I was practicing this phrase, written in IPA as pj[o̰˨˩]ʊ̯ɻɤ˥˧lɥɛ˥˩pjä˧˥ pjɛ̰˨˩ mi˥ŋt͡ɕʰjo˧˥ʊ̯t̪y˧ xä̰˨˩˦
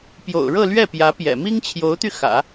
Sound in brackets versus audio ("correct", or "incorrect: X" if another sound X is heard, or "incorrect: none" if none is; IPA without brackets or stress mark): correct